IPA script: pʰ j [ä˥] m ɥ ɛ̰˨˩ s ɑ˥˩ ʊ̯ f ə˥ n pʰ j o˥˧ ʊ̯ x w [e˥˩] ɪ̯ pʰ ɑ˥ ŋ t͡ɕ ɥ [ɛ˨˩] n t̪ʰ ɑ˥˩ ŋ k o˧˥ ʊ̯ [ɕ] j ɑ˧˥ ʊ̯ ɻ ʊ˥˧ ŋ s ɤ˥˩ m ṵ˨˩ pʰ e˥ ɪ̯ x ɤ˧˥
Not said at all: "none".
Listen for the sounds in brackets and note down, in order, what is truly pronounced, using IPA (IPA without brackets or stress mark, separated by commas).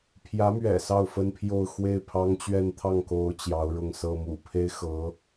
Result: ä˧˥, e˥˩, ɛ˥˧, t͡ɕ